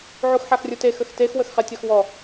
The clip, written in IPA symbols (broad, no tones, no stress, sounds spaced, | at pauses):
ʕ u x ħ a x rʲ u t e x ə x t e x w ə x χ ɛ tʲ ɒ x w ɔ